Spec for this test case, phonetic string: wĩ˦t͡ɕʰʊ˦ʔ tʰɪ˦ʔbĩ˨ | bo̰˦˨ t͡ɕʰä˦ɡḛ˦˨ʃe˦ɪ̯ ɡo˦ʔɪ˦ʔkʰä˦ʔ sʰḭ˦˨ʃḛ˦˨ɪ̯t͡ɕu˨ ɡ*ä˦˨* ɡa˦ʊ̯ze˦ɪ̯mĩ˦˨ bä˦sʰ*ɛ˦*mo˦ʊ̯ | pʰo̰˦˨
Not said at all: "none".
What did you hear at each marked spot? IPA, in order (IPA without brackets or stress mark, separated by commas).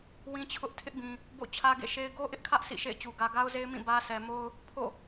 ä˨, ɛ˨